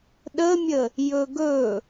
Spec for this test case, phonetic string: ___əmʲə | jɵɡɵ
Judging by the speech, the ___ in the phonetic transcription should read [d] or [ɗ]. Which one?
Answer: ɗ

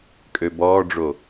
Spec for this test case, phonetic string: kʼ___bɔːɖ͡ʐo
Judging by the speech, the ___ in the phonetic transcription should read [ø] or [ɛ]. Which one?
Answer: ø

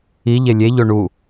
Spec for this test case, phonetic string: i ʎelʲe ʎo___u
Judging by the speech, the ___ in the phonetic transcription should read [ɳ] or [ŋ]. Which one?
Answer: ɳ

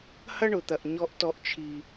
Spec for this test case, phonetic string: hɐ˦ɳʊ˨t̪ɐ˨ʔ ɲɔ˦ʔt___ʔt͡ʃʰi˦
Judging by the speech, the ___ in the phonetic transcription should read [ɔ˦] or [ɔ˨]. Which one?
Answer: ɔ˦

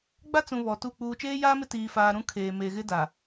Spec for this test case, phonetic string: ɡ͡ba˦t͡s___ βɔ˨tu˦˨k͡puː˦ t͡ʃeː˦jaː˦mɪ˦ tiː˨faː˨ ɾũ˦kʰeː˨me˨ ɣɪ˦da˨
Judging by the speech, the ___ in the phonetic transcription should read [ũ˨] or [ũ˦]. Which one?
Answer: ũ˨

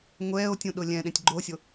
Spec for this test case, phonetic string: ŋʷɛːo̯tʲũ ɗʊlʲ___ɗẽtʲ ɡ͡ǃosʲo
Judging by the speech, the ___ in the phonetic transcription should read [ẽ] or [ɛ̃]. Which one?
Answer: ɛ̃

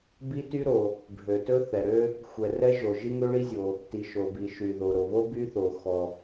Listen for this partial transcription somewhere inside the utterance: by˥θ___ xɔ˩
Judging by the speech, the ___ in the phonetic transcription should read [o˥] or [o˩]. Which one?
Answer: o˩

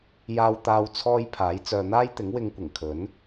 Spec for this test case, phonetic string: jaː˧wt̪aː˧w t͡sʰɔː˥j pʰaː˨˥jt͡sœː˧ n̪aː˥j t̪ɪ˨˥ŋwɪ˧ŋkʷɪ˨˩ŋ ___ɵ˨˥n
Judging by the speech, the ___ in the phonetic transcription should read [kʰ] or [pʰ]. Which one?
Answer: kʰ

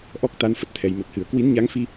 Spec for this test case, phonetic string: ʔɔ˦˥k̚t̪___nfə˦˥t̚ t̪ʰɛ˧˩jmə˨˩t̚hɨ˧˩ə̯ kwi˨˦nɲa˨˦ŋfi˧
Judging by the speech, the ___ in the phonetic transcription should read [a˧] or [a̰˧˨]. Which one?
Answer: a˧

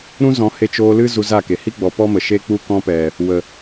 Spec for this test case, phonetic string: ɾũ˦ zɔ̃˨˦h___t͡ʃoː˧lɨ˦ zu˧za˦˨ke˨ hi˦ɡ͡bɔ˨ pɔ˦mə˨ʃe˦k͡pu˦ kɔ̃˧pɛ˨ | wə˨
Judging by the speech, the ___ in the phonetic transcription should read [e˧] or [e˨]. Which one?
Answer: e˧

